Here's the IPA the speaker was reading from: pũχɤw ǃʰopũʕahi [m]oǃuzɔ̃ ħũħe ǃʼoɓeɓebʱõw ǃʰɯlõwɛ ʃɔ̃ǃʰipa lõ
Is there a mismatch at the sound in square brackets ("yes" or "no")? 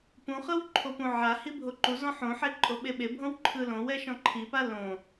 yes